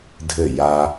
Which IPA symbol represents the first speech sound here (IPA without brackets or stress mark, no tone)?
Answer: dʱ